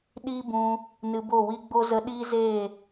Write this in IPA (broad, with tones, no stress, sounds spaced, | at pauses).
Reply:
ɗ iː˦ b ũ˧ | n ɨ˧ b o˦˨ w i˦ ɡ͡b o˦ z ə˦ ɗ iː˦ z eː˦˨